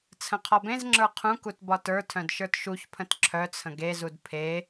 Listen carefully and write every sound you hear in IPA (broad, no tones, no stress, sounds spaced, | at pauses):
t͡sʰ ə̃ qʰ ɒ b ẽ z ŋ͡ǁ ə˞ qʰ ũ k u t b ɒ t ə˞ tʰ œ̃ d ʃ ə˞ t ʃ u ç pʰ ə̃ t ǁʰ œ t͡sʰ ə̃ ɡ e z u d pʰ e